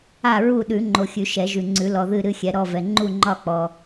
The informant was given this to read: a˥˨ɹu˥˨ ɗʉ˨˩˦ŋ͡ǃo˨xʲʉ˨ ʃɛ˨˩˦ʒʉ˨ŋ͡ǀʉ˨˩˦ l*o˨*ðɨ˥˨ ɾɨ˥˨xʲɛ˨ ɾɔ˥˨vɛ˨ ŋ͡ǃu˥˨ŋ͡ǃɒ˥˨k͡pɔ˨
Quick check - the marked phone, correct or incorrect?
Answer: incorrect